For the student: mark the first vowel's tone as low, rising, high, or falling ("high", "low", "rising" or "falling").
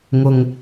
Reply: low